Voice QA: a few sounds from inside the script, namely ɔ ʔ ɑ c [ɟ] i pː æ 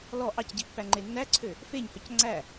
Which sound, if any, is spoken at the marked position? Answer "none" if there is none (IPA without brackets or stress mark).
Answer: ɟ